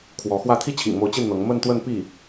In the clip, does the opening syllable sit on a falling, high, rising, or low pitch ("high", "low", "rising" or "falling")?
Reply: rising